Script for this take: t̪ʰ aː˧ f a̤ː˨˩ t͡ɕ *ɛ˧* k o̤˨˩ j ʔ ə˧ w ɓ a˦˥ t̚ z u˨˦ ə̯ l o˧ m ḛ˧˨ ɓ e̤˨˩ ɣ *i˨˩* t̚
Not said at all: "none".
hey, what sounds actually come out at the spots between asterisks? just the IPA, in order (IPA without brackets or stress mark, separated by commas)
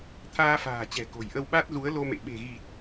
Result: ɛ̤˨˩, i˨˩